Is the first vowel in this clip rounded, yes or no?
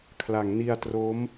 no